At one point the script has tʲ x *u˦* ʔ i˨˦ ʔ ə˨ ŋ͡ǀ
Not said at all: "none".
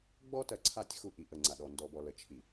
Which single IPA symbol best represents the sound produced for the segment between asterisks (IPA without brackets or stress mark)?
u˦